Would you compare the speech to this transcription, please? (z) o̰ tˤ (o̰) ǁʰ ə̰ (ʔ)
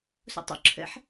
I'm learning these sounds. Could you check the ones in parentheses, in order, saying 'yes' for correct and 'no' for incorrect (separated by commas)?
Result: no, yes, no